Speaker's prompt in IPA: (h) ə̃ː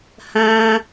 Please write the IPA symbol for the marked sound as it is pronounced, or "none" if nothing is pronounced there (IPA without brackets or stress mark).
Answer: h